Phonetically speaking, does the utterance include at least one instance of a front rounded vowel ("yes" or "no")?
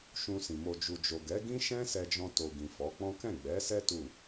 no